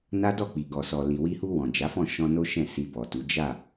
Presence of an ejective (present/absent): absent